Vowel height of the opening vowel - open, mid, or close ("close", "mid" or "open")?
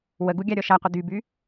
mid